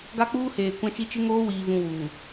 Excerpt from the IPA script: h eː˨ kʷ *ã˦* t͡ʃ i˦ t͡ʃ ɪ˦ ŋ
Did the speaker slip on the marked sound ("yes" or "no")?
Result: no